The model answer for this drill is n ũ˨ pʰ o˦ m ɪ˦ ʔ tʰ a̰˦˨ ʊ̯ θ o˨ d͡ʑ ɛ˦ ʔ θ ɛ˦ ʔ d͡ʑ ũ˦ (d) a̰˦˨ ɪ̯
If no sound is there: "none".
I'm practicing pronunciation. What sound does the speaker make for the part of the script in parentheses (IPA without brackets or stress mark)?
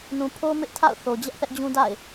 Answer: d